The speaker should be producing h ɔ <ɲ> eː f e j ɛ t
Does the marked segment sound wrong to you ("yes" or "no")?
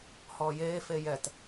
yes